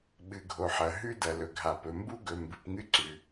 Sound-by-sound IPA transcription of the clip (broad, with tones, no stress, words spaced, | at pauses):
ɓɨ˨ɡʱo˨ħɐ˨ ɦʉ˦dɐ˨ lɵ˨ɡʱa˨pɵ˨ mbu˦ɡɵ˨ mbɨ˨pŋɨ˦ǀʉ˨